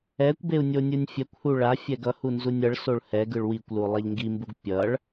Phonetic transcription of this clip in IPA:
ɛ kʷ b e u̯ nʲ o nʲ ɯ nʲ fʲ ɛ kʷ h u ɭ a fʲ ɛ ɡ ʌ h u n z u nʲ ʌ ɭ s o ɭ h ɛ ɡ ɯ ɭ w i kʷ l u lˠ ɛ ʎ ŋ ɡ i m b u ɡ pʲ ʌ ɭ

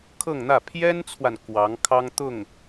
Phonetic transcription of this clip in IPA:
kʰ ɤ˥˧ ŋ n̪ ä˥˩ pʰ j ɛ˥ n t͡sʰ w a˨ n k w ɑ˧˥ ŋ kʰ ɑ˥ ŋ t̪ ʊ˥˩ ŋ

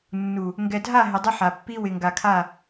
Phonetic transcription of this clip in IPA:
nː u˨ | ŋ ɡ ɛ˨ dʱ a˦˨ ɦ ɪ˨ dˤ ɪ˦ ħ a˨ pː i˦ w ɪ˨ ŋ ɡ a˨ kʰ a˦˨

